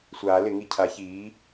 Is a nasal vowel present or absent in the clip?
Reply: absent